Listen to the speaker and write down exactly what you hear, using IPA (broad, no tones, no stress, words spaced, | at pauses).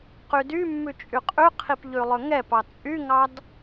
qydymːʉ t͡ʃʼyqʼʉqʰip ʎʉlˠɵŋɛpɑ t͡sʼyŋɑd